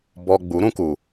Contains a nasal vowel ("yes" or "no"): yes